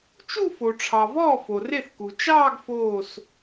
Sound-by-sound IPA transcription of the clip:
t͡ʃ u˥˧ f o˩ ʈ͡ʂʰ ɑ˩ v ɔː˥˩ f o˩ r e˥˩ θ k u˩ t͡ʃ ɑː˥˧ ɡ f oː˧˩ s

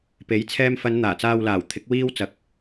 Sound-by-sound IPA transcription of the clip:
p e˨˥ j t͡sʰ ɛː˧ m f ɐ˨˧ n n̪ aː˨˩ t͡s aː˨ w l aː˨˩ w t̪ʰ ɪ˨˥ k̚ w iː˧ w t͡s ɐ˨˥ k̚

